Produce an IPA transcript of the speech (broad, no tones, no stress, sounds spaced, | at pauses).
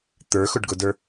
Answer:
t̪ ə˞ x ʊ ɖ ɡ ʊ d ə˞